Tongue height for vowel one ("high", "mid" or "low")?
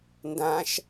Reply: low